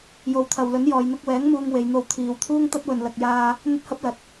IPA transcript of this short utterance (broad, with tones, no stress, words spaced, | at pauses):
jo˨˧wt̪ʰɐ˨wlɵ˨˥n jɔː˨jn̪ʊ˧k̚wɛː˨˥ŋ muː˧ŋ we˨˧jn̪o˧wt̪ʰiː˨˧w t̪ʰuː˥ŋt̪ɐ˥t̚wɵ˨n lɐ˨k̚jaː˧ | n̪ɵ˥t̚hɐ˥p̚ lɐ˨t̚